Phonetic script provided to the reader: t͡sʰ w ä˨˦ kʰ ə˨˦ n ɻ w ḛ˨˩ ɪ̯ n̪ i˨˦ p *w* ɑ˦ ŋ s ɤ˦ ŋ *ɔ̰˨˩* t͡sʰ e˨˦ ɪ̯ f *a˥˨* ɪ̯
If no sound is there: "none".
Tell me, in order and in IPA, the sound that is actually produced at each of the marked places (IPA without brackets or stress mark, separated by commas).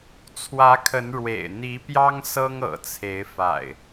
j, ɤ̰˨˩, a̰˨˩